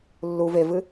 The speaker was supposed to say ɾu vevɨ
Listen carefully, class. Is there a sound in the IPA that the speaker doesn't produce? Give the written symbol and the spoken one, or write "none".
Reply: ɾ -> lː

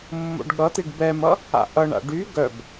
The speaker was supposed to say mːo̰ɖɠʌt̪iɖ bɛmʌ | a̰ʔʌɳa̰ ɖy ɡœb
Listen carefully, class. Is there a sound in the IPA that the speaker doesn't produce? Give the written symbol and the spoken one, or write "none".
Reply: none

